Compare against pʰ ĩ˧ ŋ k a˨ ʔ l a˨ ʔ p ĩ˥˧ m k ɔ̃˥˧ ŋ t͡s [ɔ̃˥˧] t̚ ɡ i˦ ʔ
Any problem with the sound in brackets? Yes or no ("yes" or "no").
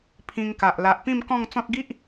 yes